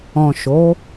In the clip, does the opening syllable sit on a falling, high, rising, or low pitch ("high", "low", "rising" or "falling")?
low